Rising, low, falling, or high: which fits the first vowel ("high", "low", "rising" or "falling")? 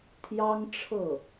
high